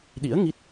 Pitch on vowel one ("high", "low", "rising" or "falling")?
rising